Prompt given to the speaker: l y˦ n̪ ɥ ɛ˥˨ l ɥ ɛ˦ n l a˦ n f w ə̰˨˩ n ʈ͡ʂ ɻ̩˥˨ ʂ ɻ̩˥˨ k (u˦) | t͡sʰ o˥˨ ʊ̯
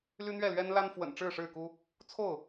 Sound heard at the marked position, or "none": u˦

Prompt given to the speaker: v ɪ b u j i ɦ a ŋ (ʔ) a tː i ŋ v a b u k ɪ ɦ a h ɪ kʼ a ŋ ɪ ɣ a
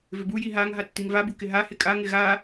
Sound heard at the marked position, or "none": ɦ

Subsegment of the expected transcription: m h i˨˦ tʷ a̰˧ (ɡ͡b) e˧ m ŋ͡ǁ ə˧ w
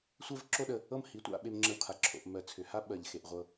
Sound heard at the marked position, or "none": ɓ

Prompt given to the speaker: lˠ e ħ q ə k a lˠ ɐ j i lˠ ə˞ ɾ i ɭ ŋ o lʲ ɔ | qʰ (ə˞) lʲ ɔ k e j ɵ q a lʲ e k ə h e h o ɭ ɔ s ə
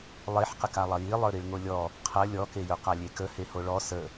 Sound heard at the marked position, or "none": ɐ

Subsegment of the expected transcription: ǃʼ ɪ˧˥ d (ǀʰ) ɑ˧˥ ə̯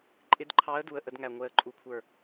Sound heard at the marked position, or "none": ǃʰ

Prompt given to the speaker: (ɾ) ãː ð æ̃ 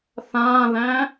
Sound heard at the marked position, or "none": θ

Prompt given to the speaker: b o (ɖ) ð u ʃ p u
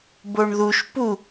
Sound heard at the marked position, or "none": ɳ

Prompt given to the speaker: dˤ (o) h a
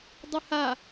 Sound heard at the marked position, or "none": u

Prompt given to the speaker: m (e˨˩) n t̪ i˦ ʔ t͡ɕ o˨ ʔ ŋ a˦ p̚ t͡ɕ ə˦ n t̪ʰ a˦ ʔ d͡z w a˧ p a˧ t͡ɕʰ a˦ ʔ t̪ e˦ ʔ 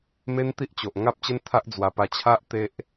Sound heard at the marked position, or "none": e˦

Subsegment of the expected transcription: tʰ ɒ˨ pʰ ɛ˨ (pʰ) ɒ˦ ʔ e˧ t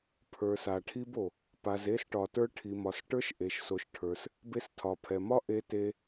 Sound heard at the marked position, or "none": m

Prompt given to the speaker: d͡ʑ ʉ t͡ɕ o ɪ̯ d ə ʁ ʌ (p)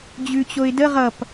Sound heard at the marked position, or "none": p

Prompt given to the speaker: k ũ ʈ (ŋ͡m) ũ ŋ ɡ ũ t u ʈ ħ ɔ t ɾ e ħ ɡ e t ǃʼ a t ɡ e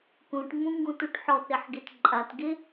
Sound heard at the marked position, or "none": ŋ͡m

